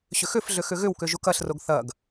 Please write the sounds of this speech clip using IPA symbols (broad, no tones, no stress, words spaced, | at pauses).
ɕʏxʏfɮʏ xʏɣʏwkʏ ʒukɐɬroɡ θɐɡ